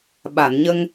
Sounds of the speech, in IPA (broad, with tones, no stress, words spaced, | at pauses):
ɓa˨˩˨nɲə˧ŋ